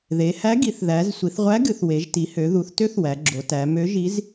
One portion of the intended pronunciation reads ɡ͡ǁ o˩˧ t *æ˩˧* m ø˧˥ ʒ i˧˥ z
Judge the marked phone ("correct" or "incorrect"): correct